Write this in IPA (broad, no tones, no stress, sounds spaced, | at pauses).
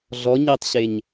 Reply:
ɮ ɔ ɲ i tˤ ɕ e ɲ